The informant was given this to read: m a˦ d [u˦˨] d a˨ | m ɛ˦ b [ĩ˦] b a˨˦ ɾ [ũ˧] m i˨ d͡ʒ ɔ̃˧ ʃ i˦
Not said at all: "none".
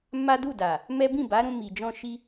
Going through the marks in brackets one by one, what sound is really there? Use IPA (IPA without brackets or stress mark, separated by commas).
u˦˨, ĩ˦˨, ũ˧